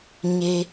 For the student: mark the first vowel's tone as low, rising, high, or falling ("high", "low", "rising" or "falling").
low